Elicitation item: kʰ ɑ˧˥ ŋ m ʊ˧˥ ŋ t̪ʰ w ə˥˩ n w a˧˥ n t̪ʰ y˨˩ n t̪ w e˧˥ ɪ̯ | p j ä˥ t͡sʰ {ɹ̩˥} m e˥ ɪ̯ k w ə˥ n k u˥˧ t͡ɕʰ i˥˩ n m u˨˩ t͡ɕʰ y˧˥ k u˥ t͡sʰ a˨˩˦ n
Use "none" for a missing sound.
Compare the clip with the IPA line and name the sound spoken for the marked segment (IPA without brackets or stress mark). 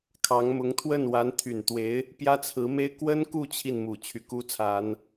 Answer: ɹ̩˧˥